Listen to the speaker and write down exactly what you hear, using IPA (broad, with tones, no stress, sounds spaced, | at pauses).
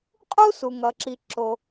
qʼ u˥ s u˩ ŋ ʌ˩ ǁ i˩ ǁ o˩